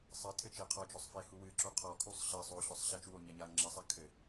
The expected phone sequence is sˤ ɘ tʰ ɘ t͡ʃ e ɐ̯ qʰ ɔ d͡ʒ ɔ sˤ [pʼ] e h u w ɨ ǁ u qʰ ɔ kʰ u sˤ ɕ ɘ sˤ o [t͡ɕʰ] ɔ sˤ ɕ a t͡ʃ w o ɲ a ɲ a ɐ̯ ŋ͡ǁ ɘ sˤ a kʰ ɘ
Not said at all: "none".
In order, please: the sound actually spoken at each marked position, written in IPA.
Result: f, ɕ

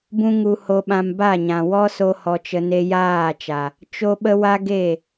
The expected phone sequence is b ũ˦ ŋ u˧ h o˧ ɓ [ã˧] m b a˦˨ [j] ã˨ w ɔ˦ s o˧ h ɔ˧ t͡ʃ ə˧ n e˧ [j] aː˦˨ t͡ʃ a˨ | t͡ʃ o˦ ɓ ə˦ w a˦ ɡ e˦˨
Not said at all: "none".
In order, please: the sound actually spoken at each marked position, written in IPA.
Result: ã˧, ɲ, j

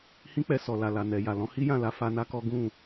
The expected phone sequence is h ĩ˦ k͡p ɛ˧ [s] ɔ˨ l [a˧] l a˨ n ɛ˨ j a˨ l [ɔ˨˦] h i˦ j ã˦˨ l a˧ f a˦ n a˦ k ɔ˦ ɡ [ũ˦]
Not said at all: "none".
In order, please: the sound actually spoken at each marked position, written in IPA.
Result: s, a˨, ɔ̃˨˦, ũ˦˨

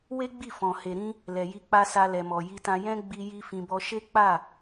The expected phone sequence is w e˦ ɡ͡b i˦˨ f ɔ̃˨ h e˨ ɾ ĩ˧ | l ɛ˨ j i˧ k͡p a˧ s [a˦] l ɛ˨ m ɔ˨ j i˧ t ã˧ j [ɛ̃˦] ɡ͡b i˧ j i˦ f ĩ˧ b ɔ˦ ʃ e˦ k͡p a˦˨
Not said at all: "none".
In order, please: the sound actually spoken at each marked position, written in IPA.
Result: a˧, ɛ̃˦

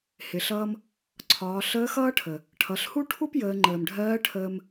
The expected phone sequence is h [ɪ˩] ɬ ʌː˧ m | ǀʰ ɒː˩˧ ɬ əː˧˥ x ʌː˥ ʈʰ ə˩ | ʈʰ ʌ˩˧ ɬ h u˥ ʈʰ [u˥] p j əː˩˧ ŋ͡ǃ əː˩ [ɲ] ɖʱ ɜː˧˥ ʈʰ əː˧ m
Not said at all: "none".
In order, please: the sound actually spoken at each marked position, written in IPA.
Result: ɪ˩, u˥, m

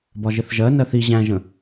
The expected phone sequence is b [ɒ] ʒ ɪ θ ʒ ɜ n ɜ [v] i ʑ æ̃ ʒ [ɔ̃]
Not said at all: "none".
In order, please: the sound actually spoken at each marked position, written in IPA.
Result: ɒ, θ, ə̃

